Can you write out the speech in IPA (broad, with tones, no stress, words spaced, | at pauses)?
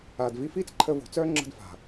aː˨dvi˧fiː˦t͡s ǃʰəː˧vo̤˨ t͡sœː˦ ŋ͡ǁə̤˧d fa̤˨